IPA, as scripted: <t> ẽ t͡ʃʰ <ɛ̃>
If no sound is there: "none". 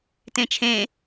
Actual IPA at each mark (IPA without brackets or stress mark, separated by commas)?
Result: t, ẽ